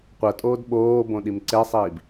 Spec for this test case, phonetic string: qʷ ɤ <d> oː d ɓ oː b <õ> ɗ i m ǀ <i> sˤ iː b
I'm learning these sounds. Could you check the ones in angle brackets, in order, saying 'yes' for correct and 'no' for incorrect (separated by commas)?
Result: no, yes, no